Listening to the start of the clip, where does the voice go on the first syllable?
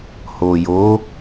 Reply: low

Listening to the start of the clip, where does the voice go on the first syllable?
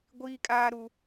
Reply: high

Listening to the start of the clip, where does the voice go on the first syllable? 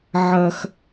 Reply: high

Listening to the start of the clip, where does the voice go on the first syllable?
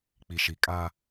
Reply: low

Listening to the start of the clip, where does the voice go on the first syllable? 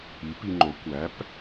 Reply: rising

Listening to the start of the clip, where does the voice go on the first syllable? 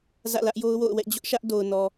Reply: falling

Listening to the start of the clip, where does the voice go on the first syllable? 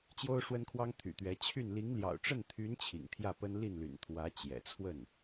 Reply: high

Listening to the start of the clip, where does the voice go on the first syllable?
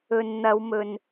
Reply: low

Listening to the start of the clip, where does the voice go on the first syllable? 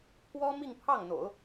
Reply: high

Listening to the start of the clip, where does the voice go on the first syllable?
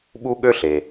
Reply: high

